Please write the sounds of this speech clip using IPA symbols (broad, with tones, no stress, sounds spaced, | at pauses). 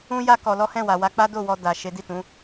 ũ˦ j a˦ k ɔ˧ l ɔ˦ h ɛ̃˦˨ w a˨ w a˧ k͡p a˦ d o˦˨ w ɔ˧ d a˨ ʃ e˨˦ d i˦˨ t ũ˨˦